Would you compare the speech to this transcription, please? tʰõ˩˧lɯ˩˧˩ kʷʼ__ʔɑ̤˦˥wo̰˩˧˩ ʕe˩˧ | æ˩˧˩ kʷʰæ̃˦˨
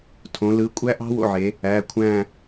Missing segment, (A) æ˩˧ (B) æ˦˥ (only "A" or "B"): B